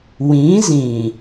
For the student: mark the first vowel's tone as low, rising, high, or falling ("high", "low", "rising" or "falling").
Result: rising